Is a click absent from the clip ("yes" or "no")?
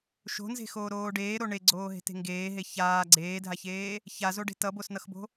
no